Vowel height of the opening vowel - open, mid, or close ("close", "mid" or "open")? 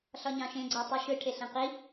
open